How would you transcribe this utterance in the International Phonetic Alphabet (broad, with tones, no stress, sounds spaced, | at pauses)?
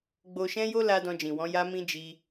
ɡ͡b o˧ ʃ ɛ̃˦ j o˦ l a˧ d ɔ̃˧ d͡ʒ ĩ˨ w ɔ̃˨˦ j a˦ m ĩ˦ d͡ʒ i˧